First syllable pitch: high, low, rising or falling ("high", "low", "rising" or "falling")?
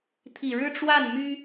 low